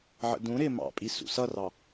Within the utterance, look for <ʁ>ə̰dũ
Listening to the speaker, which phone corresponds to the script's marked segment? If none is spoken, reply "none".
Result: ʕ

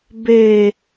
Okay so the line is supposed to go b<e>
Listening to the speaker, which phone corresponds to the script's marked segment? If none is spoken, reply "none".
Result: e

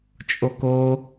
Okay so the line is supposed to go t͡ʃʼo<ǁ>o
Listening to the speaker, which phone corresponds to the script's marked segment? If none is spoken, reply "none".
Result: k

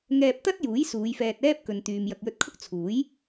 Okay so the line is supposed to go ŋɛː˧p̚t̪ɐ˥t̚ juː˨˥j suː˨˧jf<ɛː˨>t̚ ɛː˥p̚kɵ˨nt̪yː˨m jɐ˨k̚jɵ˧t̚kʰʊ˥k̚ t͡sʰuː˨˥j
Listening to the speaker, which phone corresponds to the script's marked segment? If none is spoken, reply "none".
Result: ɛː˧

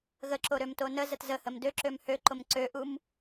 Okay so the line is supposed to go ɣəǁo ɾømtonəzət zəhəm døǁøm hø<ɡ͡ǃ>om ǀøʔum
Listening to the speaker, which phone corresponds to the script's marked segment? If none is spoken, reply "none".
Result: ǃ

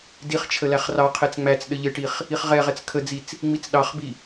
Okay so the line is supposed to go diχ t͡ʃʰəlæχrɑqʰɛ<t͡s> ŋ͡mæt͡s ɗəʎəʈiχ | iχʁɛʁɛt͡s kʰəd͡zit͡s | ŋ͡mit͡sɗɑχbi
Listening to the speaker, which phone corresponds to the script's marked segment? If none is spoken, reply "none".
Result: t͡s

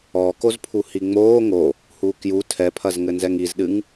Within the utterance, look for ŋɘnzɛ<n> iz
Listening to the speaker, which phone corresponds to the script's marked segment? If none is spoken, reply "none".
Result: ŋ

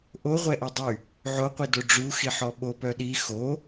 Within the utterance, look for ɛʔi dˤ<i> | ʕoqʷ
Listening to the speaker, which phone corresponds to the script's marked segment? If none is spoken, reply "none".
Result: y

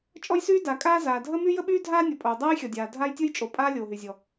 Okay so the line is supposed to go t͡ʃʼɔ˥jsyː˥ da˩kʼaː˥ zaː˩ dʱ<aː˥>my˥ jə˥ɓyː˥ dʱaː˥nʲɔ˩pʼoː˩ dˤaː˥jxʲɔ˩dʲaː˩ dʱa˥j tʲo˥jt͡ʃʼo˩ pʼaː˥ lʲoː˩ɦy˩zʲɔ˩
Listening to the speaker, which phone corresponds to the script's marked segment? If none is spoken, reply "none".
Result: əː˥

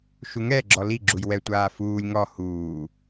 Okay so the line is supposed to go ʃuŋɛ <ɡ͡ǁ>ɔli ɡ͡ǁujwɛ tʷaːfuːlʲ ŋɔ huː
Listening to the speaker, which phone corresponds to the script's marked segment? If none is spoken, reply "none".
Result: ɡ͡ǁ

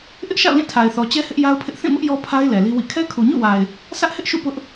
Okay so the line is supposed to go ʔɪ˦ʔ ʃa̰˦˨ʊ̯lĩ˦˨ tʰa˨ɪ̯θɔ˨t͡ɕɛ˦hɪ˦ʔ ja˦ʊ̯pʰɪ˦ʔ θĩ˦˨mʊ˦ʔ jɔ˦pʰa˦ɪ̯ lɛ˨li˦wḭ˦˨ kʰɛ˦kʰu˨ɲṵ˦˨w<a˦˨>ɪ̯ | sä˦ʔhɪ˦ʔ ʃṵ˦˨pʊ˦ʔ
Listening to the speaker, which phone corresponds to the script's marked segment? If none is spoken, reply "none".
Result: a˨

